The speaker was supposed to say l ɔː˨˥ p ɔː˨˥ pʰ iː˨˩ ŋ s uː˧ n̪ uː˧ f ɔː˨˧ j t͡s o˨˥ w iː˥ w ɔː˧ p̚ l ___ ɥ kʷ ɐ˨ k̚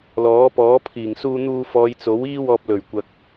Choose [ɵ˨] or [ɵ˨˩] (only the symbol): ɵ˨˩